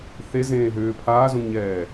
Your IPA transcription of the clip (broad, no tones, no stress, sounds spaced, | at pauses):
θ e z ẽː ɦ ʏː pʰ aː z ũ ŋ ɲ ɛː